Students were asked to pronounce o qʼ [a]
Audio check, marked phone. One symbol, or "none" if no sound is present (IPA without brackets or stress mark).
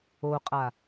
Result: a